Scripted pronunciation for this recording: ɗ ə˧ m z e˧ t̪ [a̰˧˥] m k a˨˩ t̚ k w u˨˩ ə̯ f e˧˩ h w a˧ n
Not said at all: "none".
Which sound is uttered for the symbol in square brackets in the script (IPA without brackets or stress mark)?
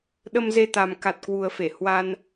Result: a˨˩